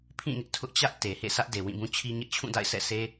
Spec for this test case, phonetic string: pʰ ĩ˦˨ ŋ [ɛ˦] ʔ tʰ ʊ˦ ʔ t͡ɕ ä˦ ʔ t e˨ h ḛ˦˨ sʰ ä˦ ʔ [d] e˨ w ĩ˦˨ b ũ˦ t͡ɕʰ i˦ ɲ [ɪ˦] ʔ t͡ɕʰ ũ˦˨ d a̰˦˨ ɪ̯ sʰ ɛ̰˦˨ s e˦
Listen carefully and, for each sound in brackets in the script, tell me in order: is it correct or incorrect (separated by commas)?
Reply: incorrect, correct, correct